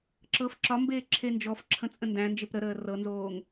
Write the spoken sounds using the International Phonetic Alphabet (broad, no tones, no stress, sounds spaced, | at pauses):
ǁ ɤ f ǁ ɒ m b eː ǁʰ e n d͡ʒ ɔ f ǁʰ ə̃ t͡sʼ ə̃ n d æ̃ n d͡ʒ e p ɾ ə ɾ əː r ɤ n z oː ŋ